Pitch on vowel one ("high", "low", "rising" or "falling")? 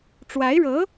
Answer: rising